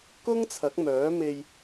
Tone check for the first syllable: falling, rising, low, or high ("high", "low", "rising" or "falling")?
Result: high